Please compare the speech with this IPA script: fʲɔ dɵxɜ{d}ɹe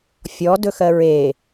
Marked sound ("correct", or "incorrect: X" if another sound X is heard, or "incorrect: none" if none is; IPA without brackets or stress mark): incorrect: none